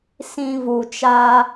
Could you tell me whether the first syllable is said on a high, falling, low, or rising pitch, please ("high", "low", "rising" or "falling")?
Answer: low